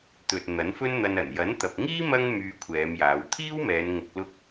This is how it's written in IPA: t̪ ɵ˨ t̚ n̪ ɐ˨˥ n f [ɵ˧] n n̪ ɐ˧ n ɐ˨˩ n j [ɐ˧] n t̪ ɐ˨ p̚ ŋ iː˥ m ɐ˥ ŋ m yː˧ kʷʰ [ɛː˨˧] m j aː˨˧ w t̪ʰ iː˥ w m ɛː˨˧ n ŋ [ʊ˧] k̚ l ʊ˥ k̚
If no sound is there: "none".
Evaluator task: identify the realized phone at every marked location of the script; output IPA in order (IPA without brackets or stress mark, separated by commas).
ɵ˥, ɐ˨˥, ɛː˨˧, ʊ˧